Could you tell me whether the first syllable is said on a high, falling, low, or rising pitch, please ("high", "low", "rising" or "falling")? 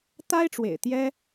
high